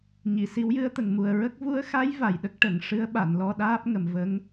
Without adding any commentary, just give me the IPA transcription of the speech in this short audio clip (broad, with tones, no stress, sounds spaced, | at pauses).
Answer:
ɲ i˨˩˨ s i˧˥ w j ɨ˧˥ ə̯ t̪ ə˨˩ ŋ m u˨˩ ə̯ ɹ ə˦˥ k̚ v u˧˥ ə̯ x a˧˥ j v a˨˩ j ɗ ə˦˥ k̚ ʈ ə˨˩˦ ŋ ʂ ɨ˧˥ ə̯ ɓ a˨˩˨ n l ɔ˧ ɗ aː˦˥ p̚ ŋ ə˨˩ m v ə˧˥ ŋ